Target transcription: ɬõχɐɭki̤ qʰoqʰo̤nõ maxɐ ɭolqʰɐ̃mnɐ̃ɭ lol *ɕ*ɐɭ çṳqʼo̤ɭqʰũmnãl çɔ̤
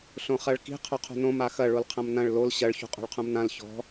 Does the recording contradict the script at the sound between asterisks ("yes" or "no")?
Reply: no